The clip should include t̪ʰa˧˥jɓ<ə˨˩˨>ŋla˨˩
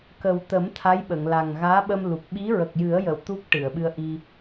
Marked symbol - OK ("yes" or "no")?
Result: yes